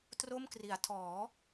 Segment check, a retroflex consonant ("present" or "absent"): absent